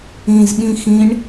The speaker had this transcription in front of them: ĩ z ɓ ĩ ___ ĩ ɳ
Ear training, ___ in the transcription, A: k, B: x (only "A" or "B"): B